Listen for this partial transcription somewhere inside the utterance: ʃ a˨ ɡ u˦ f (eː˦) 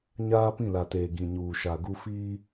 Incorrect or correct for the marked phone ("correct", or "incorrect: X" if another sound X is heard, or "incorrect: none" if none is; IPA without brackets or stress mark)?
incorrect: iː˦